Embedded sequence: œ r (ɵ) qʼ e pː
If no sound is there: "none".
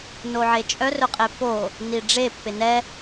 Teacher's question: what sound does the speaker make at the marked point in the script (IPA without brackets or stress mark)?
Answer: ɵ